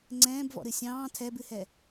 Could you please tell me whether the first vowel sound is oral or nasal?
nasal